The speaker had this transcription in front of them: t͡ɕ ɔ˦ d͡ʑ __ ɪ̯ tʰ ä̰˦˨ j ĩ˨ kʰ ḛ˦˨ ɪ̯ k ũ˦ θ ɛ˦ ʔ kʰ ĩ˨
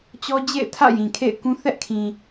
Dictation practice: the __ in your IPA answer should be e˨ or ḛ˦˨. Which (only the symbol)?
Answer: ḛ˦˨